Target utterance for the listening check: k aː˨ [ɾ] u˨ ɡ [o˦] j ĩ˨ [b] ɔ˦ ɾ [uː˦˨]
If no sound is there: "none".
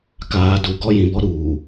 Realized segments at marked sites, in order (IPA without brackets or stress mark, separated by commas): d, ɔ˦, b, uː˨